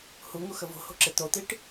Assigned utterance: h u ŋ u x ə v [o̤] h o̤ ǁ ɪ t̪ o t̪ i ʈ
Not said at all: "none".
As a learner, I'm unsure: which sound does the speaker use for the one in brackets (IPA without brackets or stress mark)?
o̤